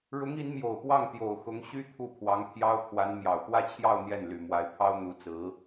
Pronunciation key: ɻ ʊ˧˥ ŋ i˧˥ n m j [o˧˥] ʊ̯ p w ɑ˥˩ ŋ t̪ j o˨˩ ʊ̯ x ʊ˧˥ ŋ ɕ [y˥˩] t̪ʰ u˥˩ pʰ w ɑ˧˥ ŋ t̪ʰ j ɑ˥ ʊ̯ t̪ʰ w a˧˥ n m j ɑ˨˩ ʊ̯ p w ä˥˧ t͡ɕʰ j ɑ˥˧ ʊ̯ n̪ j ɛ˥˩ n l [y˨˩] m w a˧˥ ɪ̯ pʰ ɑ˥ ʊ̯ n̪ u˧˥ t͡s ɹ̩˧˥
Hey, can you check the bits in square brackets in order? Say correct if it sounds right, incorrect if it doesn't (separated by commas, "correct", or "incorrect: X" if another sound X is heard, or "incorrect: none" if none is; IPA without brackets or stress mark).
incorrect: o˨˩, incorrect: y˥, correct